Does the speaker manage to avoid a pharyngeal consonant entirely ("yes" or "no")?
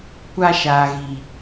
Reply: yes